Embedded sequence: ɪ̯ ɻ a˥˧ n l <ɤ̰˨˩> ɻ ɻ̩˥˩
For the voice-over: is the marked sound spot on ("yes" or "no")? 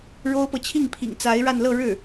no